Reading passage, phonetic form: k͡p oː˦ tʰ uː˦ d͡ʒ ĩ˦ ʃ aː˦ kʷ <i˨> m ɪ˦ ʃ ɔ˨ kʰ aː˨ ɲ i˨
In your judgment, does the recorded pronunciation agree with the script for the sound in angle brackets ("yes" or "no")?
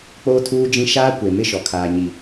no